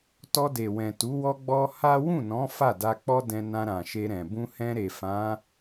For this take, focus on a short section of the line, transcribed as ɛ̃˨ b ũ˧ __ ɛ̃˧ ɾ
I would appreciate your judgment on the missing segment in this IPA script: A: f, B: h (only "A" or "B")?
B